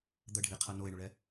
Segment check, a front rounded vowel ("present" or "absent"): absent